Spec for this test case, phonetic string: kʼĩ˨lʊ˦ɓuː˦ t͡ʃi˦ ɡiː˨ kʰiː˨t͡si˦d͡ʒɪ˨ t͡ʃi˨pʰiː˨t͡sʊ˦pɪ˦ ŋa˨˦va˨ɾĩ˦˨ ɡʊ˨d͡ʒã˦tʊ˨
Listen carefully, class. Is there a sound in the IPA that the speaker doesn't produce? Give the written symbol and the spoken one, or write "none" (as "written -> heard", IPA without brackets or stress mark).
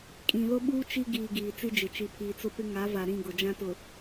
kʰ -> ɡ